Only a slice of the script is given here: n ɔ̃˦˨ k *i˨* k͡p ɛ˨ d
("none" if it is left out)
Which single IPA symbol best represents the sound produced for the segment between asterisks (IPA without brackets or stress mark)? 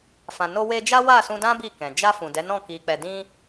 i˨